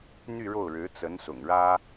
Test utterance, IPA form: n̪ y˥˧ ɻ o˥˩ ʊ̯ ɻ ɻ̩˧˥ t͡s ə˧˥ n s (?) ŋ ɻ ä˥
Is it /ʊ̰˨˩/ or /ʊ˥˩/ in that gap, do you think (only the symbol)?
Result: ʊ̰˨˩